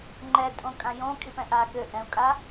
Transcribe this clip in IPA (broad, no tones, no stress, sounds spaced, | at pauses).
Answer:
ŋ͡ǃ ɛ tʼ õ kʼ ã j õ kʼ i p ɛ̃ ʔ aː k ø ʔ ɛ̃ u̯ kʼ a